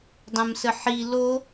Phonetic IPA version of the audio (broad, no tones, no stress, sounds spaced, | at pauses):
dˤ ə̃ m s ə ħ i l o